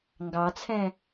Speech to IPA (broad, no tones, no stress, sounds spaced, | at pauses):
ŋ ɡ ɑ t͡sʰ ɛ̃